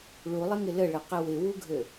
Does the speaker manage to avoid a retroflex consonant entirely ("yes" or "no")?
no